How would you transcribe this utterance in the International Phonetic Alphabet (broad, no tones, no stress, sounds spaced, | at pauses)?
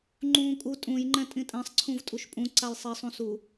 ŋ͡ǃ ũː kʼ u tʼ ũ j ŋ͡ǃ ɛ̃ tʼ ĩ tʼ ɛ̃ sˤ ǀʰ ũ v tʼ u ʃ pʼ ũ ǀ a j sˤ i sˤ ũ s u